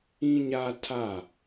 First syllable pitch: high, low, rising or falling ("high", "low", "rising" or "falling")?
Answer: high